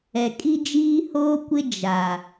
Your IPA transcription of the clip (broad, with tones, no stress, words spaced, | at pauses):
ɛ˨kʼi˦ d͡ʒiː˦hoː˦ kʷɪ˦ d͡ʒa˨